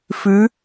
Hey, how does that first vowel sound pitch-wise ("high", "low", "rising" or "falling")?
rising